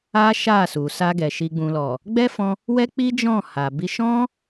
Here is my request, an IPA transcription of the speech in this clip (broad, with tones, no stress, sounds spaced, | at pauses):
a˦ ʃ a˦˨ s u˨ s a˧ ɡ ɛ˨ ʃ i˨ ɡ͡b ũ˨ l ɔ˨ | ɡ͡b ɛ˦ f ɔ̃˧ | w ɛ˦ k͡p i˦ d͡ʒ ɔ̃˦˨ h a˨ b i˧ ʃ ɔ̃˦